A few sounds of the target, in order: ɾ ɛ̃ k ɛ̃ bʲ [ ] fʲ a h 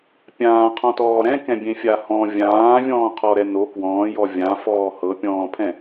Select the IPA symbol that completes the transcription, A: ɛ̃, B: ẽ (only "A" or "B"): B